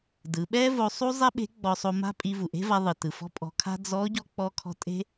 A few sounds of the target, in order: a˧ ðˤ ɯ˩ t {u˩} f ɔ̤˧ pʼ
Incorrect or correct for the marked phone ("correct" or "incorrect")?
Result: incorrect